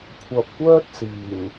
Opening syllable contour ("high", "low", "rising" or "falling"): low